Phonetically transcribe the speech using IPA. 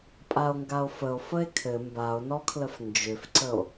pʼ a o̯ ŋ ɡ a o̯ f ə o̯ f ə e̯ kʰ ɘ m b a o̯ n ɔ kʰ l ə f n d͡ʒ ʏ f ǀ ə o̯

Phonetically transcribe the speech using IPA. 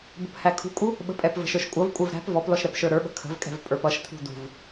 b ə̤ p h æ kʰ ṳ kʼ u | ɓ ə̤ pʼ ɛ p v ə̤ ʃ ə˞ ʃ kʷʼ ʌ v kʷʼ ə˞ v ɾ æ̤ p v ɔ p l ɔ ʃ ɾ ɛ p ʃ ə˞ ɾ ə˞ ɓ ə̤ kʰ ə̤ v kʼ ɛ̤ v pʼ ə˞ p ʌ ʃ tʰ ṳ d ṳ v

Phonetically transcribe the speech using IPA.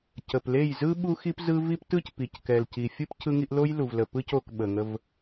c ə˨ p l e˦˨ j z ɯ˦ ɓ u˦ x i˦ p z ɯ˦ v i˦ p t ɯ˦ c p i˨ c k ɛ˨ l c i˨ fʲ ɯ˦ p cʰ ɯ˦ ŋ i˦ ʔ l o˦ j l u˨ v l ə˨ p ɯ˦ c o˦˨ k ɓ ə˨ ŋ ə˦ v

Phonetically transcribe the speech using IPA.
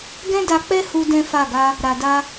ɡ ɛ̃˦ d a˧ k͡p ɛ˦ h u˦ d ɛ̃˦ f a˦˨ ɡ a˧ | ɾ a˨ d a˧

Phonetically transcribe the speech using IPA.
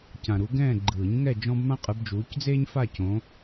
c ã˨ ɾ u˨˦ ɡ ɛ̃ː˥˧ ɡ͡ǃ ɯː˨˩˦ ɲ ŋ ɛ˥˧ d͡ʒ ɔ̃˥ b m ã˥ qʼ ɯ˨˦ b d͡ʒ uː˨˦ c d͡z eː˥ ɲ f a˥˧ c õ˨˦

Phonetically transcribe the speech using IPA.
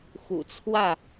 x ṵ˨˩ t͡sʰ w ä˥˨

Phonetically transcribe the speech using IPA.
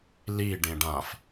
l i ɖ ẽ ɖ ã f

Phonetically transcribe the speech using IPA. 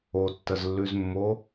o tː ə z lː ʉ z mː o

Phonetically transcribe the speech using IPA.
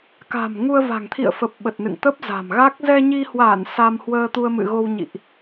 k a̤˨˩ m ŋ u˧ ə̯ v a̤˨˩ ŋ t̪ʰ ḭ˧˨ ə̯ f ə˨˩ p̚ ɓ ə˨˩ t̚ n ɨ̰˧˨ ŋ t̪ ə˦˥ p̚ z a̤˨˩ m ɣ a˦˥ k̚ z ɛ˧ ɲ i˧ h w a˧˩ n s a˧ m h w əː˧ t̪ u˧ ə̯ m ɨ̰˧˨ ɣ o˧ w ɲ ḭ˧˨ ʔ

